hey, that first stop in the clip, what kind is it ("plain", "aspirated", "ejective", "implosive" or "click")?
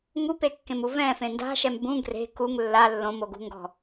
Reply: plain